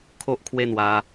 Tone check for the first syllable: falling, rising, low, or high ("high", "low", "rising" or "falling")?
high